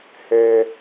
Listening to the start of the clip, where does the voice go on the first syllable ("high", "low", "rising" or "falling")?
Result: low